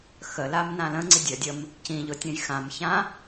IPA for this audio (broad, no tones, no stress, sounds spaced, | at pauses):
x ə l a m n ã l ə̃ ŋ͡ǀ i dʲ ə dʲ ə m | c ĩ ʎ ʊ tʲ ə̃ j x ã m ç ã